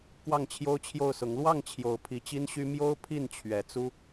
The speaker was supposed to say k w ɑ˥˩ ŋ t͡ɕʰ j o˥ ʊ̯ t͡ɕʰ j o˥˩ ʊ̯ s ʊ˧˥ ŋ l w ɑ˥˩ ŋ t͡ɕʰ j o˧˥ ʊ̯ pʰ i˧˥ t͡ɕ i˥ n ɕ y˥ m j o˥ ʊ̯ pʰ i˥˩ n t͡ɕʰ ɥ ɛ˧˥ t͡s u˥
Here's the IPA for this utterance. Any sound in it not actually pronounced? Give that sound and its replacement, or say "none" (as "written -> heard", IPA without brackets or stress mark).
none